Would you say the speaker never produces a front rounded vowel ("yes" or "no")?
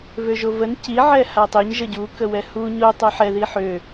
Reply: no